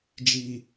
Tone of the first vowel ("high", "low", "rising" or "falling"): low